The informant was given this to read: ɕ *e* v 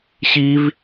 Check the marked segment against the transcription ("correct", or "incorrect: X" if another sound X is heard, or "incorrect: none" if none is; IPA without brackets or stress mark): incorrect: i